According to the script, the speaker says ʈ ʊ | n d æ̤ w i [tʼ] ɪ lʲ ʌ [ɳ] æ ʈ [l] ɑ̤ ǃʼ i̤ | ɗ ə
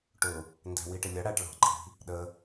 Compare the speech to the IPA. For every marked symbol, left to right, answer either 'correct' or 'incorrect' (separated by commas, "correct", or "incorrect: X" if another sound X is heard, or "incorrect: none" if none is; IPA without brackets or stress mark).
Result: incorrect: ʈ, incorrect: ɽ, incorrect: ɭ